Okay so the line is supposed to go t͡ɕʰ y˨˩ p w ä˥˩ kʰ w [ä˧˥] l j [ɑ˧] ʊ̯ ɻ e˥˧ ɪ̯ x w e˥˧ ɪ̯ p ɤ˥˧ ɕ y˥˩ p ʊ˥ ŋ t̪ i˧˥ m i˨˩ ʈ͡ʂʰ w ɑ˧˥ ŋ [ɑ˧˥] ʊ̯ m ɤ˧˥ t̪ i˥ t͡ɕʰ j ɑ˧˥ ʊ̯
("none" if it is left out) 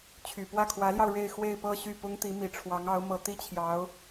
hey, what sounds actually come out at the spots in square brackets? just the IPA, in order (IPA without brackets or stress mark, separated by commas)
ä˧˥, ɑ˧, ɑ˧˥